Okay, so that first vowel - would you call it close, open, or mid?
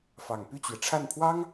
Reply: open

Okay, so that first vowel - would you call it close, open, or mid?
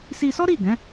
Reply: close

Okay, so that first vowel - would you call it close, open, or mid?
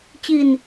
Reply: close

